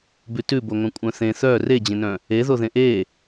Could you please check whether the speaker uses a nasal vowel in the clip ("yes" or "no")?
yes